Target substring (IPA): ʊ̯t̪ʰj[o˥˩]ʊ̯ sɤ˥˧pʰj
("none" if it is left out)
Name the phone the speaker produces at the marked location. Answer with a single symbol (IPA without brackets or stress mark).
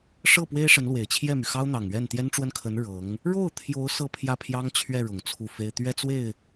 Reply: o˧˥